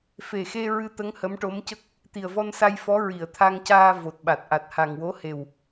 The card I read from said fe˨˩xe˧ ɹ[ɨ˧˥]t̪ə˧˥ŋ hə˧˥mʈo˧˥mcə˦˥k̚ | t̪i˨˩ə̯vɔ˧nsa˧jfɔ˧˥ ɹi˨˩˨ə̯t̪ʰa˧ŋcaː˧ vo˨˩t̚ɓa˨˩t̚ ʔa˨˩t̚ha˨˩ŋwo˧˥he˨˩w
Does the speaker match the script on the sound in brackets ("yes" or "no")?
no